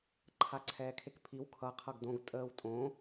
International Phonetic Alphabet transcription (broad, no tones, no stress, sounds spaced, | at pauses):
ǃʰ a ǀʰ ɛː kʰ e k pʰ i w kʰ ʌ qʰ ʌ ɡ d õ ɡ tʼ əː w tʼ õ